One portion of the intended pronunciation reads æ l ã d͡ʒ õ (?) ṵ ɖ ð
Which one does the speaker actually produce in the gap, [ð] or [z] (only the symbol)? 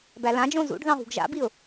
z